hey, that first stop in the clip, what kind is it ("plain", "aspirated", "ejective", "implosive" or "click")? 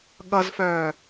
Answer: implosive